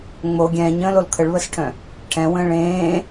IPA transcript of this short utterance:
ŋ͡mo ɡʲɛ̃ːɲə̃ːlol kʰəɭβəsʈʰœ̃ | ʈʰɛ̃wə̃ː ɭẽː

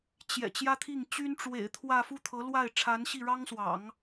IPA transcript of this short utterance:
t͡ɕjɛ̰˨˩ t͡ɕjä˥t̪ʰi˥˩ŋ t͡ɕy˥nʈ͡ʂwḛ˨˩ɪ̯ t̪ʰwä˥˧ fu˥˩t̪ʰɤ˧˥ lwa˥˩ɪ̯ʈ͡ʂʰa˧˥nɕi˥˩ ɻɑ˥ŋswɑ̰˨˩˦ŋ

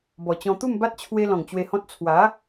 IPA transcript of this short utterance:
bɔ˨˩t͡ɕɔ̃˧ t̪u˥˧mba˦t̚ t͡ɕʰwe˦lɔ̃˨˩ŋt͡ɕwe˧hɔ̃˦t̚ t͡sʰwa˨˦

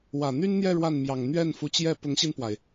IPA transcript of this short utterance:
wä˨˩n̪y˥nn̪jɛ˥˧ ɻwa˥˩nmjɑ˨˩ŋ n̪ɥɛ˥˩nfu˧˥t͡ɕjɛ˥˩ pʊ˧˥ŋɕi˧npwa˩ɪ̯

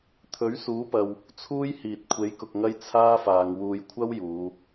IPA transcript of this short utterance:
t̪ʰɵ˨˥ɥsuː˨˥pɐ˨w | t͡sʰuː˥j hiː˨t̚kʷʰe˨˥j kʊ˨k̚ŋɐ˥j t͡sʰaː˥faː˨ŋwuː˧j kʷʰɐ˥w juː˨˧

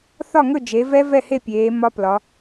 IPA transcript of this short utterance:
θɒ˥˨ŋɵ˥˨d͡ʒe˩˧vɛ˦˥ vɛ˥˨he˥˨ pʲeː˩˧ mɒ˦˥plɒ˩˧

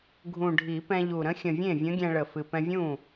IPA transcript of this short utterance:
ɡʱũ˨˩ɖʱi˨˩˦pɛ̃˧ʎu˨˩ ɾə̃˧˥xʲə̃˨˩vʲẽ˥˩ vʲə̃˧˥ɡʲɛ̃˧ɭə˨˩ fɨ˨˩pɛ̃˧vʲũ˥˩

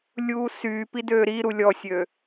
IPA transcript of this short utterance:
lʲuːsyːpi døːɾiɾu lʲɔsʲø

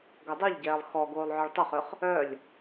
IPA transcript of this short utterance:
ɡɐdˤœʎɟɛːlˠ xɔ ɡoːlˠʕœɭtˤəχʏχ | œlʲ

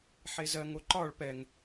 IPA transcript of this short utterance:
ħezɜ ŋoǃɒɭ pɛŋ

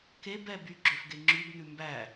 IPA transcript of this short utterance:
kebɛ byɡ͡ǁøfɡe ŋ͡ǁʉbn̪ʉ mbæ

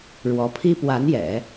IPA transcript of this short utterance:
ɻwɔ˧˥ pʰi˥pwa˧˥njɛ̰˨˩˦

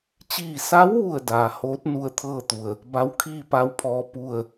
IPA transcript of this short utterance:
t͡ɕiː˧˩sa˧˥wʋu˧˩ə̯ daː˩hoː˧˥t̚ nu˧ə̯t̪ʰɤː˥˨t̪u˩ə̯ | ba˧˥wkʰiː˥˨pa˧˥wpʰɔː˧ pu˥˨ə̯

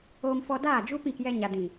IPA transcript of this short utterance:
oː˧mfɔ˧daː˦˨ d͡ʒu˦pĩ˦˨kjɛ˧ ɲa˨dĩ˨

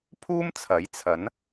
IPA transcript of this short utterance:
pʰuː˥mt͡sʰɐ˨˥j t͡sʰɐ˨˥n

